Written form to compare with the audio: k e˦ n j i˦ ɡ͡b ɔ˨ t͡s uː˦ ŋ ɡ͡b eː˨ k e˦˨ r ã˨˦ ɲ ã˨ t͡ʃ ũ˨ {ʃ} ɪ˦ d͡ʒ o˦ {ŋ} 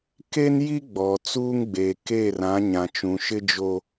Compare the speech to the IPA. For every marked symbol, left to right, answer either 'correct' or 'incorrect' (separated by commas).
correct, incorrect